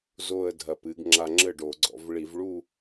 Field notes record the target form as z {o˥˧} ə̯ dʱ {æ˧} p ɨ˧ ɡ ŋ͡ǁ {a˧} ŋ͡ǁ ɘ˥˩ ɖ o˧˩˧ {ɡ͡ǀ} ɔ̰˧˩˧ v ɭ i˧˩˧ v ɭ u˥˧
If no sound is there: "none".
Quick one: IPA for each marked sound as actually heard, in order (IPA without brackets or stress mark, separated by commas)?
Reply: o˥˧, ɐ˧, a˧, ɡ͡ǀ